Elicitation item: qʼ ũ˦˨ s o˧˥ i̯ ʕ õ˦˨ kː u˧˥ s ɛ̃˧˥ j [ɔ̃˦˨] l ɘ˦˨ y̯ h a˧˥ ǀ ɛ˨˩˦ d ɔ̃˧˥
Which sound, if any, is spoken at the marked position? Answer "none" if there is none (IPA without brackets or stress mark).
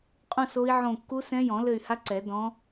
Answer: ɔ̃˨˩˦